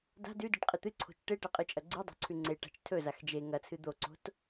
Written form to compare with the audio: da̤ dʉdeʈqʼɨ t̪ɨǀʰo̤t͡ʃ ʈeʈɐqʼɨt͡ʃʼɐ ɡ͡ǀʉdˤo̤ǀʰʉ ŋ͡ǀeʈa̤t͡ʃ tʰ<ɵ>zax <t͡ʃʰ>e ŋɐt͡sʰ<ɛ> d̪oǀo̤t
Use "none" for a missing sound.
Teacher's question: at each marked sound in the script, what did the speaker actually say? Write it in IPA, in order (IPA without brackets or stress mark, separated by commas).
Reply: ɵ, d͡ʒ, ɨ